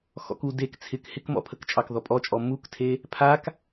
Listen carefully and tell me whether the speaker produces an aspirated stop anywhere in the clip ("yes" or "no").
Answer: yes